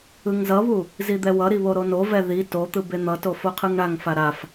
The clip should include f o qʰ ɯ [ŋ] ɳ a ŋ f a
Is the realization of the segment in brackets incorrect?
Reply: no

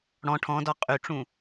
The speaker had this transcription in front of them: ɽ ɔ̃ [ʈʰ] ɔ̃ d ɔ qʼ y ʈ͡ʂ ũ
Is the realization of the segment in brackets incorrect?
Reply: no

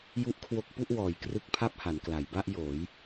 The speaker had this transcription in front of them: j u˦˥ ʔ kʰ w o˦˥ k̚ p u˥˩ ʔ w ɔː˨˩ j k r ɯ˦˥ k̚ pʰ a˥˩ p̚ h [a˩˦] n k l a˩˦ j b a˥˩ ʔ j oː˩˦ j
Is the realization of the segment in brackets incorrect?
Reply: no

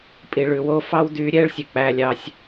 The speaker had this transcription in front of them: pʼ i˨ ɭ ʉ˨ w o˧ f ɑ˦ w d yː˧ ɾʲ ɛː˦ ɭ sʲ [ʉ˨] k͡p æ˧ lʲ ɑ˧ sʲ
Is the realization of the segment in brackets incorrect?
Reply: no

